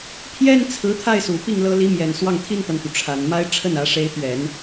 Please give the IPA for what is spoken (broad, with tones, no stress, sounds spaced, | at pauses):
pʰ j ɛ˥ n t͡sʰ ɹ̩˧˥ t̪ʰ a˥˩ ɪ̯ s u˨˩ p i˥˩ ŋ l ɤ˧˥ l i˧˥ m j ɛ˨˩ n s w ɑ˥˩ ŋ t̪ʰ i˥ n t̪ a˨ n t̪ u˩ ʈ͡ʂʰ a˨˩ n m a˥ ɪ̯ ʈ͡ʂʰ ə˥˩ n ä˧˥ ʂ e˧˥ ɪ̯ t̪ ɥ ɛ˨˩˦ n